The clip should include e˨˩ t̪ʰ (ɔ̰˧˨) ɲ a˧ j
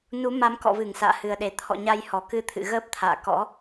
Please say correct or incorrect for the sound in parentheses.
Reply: correct